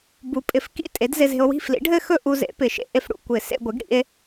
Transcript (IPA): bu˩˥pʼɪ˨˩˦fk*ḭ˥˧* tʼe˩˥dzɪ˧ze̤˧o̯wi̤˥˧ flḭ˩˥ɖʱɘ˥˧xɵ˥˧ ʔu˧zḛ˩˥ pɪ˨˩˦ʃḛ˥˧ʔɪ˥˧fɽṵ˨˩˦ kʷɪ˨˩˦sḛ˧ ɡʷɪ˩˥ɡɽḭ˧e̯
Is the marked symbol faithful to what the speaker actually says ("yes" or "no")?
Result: yes